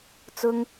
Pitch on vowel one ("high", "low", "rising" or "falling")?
high